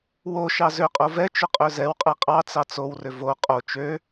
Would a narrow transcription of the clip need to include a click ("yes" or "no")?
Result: no